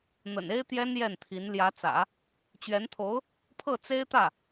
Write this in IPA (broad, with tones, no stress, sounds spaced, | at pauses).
n̪ ə̰˨˩ n e˥ ɪ̯ t̪ j ɛ˥ n j ɛ˥˩ n t̪ʰ i˧˥ n l j ä˧˥ t͡s ä̰˨˩˦ | t͡ɕ ɥ ɛ˧˥ n t̪ʰ o˧˥ ʊ̯ | pʰ ɤ˥˩ t͡s e˥ ɪ̯ t̪ ä˥˩